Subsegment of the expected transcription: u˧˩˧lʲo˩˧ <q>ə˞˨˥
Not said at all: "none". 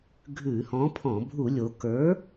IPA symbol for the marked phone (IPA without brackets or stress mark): k